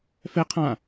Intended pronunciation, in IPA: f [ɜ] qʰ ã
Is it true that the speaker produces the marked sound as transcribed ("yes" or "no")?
no